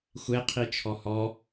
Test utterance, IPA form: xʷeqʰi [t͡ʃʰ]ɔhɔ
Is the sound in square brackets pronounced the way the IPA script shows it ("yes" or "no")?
yes